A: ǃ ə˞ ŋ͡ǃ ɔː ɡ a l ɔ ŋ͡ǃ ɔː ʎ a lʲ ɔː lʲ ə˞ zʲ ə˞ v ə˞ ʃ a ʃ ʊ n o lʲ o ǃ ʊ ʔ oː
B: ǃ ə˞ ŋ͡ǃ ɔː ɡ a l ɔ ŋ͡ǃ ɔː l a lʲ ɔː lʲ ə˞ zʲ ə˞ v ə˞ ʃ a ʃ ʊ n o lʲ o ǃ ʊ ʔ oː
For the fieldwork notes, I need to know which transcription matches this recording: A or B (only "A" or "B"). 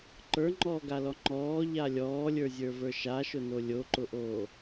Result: A